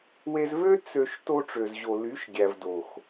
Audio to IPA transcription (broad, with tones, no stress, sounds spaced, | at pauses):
w e˧ z v ø˦ t͡s ø˧ ʃ t o˧ ʈ͡ʂ ø˨ z ʑ o˨ l y˨˦ ʃ ɡʲ æ˨ v d o˨ x